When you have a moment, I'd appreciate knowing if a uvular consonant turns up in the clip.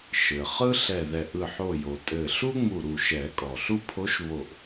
yes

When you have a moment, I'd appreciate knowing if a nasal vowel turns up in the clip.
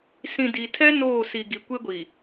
yes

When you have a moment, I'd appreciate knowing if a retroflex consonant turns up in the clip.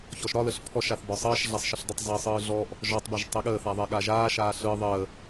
no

